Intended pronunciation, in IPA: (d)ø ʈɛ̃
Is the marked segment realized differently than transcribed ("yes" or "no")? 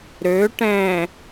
yes